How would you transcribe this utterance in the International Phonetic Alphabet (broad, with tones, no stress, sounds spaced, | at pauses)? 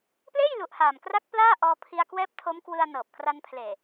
p l eː˥˩ j l u˨˩ ʔ h aː˨˩ m k r a˦˥ k̚ p l aː˥˩ ʔ ɔː˧ pʰ i˧ a̯ k w ɛː˦˥ p̚ tʰ o˦˥ m k w ɯ˧ a̯ n ɤː˨˩ p̚ k r a˧ n pʰ l eː˨˩